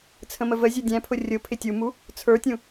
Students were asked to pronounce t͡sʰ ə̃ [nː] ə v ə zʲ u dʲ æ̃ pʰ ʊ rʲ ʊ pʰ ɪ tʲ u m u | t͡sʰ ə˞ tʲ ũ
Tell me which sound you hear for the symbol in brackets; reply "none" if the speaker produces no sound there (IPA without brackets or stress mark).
m